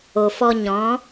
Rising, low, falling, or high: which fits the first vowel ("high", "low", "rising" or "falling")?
low